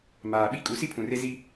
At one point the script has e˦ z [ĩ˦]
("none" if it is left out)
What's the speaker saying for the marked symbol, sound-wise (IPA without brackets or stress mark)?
i˦